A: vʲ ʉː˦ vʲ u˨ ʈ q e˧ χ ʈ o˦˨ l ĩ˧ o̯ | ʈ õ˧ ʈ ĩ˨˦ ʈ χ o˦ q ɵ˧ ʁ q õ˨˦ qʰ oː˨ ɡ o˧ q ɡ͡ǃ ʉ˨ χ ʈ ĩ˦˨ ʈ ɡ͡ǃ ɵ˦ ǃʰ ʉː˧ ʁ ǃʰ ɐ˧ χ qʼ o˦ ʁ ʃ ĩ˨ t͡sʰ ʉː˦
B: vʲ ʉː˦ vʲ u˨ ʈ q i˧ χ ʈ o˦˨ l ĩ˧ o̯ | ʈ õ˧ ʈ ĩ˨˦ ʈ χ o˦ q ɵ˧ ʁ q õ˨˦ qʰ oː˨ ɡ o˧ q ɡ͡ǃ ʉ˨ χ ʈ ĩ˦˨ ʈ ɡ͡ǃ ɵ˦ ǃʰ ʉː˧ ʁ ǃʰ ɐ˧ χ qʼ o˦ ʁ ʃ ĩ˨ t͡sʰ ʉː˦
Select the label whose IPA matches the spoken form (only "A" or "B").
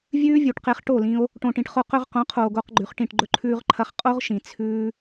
A